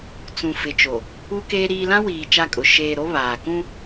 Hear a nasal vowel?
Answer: yes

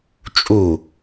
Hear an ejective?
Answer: yes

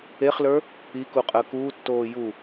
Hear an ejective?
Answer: yes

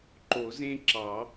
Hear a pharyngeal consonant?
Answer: no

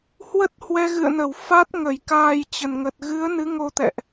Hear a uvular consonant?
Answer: no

